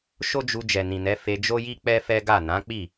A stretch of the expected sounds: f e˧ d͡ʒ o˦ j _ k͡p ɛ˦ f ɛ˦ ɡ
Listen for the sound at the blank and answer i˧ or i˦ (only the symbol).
i˦